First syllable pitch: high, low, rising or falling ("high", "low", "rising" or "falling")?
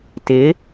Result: rising